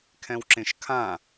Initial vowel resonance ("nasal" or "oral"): nasal